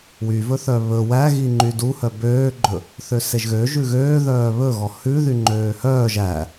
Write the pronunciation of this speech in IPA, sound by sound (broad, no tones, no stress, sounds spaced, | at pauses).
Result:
w y v ɵ θ œ β ɵ w æ ɣ i ŋ͡ǃ y d u h œ b øː ɡ͡ǃ ɵ | θ ø s e ʒ ɣ ø ʒ ʉ ɣ øː ð œː β ɵ ɣ ɔ h ʉ ð y ŋ͡ǃ øː h œː ʒ æ